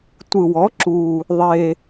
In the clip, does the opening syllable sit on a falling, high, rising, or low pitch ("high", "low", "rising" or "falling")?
low